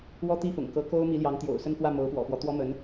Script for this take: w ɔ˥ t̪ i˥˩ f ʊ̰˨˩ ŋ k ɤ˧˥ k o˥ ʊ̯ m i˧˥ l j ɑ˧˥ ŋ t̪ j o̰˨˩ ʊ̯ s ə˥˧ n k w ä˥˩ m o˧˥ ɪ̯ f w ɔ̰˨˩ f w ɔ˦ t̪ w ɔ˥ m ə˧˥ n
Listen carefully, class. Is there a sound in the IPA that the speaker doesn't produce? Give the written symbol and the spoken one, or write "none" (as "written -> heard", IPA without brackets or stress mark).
ɪ̯ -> ʊ̯